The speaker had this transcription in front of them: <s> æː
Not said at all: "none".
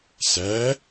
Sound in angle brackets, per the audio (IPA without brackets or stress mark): s